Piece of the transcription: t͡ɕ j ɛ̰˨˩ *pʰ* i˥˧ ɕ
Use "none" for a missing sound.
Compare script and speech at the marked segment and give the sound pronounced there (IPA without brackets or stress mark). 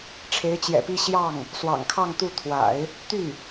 p